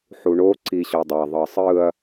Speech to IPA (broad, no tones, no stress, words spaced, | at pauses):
ħuɳo ǀiɕɔdˤa ðˤɤsˤɯɐ̯